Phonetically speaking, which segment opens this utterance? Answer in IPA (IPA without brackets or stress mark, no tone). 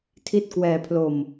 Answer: tʰ